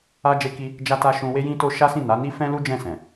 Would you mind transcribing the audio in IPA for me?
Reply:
a˦ d͡ʒ e˦ k i˦ | d͡ʒ a˦ t a˦ ʃ ũ˧ w e˦ j ĩ˦ t o˦ ʃ a˦ s ĩ˦˨ n a˨˦ n i˦ f ɛ̃˦ l u˦ d͡ʒ ɛ̃˦˨ s ɛ̃˨

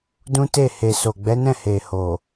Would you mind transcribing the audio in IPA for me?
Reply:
d ũ˦ t e˦˨ h e˨ s o˨ ɡ͡b ɛ˨˦ n ɛ̃˦˨ h e˨ h o˨

